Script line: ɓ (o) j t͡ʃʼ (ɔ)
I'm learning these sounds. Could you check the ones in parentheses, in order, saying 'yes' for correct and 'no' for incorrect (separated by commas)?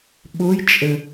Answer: yes, no